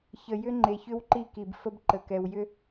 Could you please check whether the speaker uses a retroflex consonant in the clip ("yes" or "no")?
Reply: no